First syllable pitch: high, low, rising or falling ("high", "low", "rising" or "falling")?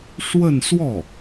falling